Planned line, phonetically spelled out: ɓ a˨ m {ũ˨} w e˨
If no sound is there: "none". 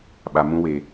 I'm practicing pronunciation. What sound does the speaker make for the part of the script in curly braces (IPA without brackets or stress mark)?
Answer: ũ˦